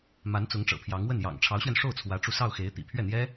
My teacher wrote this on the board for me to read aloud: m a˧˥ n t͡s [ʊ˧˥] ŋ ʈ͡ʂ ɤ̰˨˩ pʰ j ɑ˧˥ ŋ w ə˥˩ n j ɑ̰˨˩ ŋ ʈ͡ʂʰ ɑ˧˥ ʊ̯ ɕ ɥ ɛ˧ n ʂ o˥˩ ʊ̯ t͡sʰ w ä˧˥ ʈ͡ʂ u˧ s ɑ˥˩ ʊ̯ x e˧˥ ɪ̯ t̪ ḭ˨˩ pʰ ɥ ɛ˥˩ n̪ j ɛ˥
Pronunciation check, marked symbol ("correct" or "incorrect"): correct